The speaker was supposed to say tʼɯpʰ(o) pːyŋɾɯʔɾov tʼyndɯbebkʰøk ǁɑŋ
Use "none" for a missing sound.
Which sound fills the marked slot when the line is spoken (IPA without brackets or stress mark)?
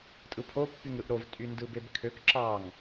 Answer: o